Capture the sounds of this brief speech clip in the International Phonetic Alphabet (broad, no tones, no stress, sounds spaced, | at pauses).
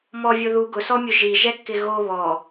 m ɔ vʲ o ð u ɡ ʊ s ɔ mʲ ʊ ʒ i ʒ ɛ kː ɪ ɣ o β ɔ